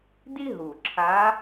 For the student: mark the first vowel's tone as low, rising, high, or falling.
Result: high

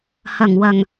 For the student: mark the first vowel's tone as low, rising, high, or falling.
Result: low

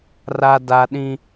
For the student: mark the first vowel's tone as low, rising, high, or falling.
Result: high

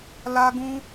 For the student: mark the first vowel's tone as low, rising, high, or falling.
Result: high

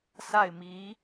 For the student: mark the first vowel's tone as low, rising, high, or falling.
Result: falling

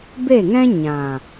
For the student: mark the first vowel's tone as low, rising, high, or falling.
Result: falling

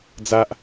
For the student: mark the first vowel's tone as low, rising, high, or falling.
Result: high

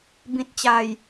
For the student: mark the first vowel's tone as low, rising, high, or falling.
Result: low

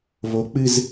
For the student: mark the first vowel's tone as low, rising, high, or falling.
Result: rising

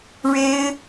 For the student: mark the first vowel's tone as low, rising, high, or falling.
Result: high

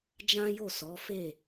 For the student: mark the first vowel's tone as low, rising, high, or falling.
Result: high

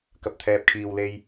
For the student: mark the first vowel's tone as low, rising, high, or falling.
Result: low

